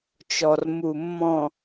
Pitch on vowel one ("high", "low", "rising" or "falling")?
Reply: low